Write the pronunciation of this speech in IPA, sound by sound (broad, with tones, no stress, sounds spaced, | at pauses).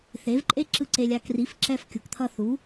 θ e˩˥ v ǃʼ e˥ ǁ ɯ˥˩ ǀ e˧ lʲ a˧ k r i˩˥ f ǁ ɛ˧ f kʲ u˩ k t̪ʰ ʌ˧ θ u˩˥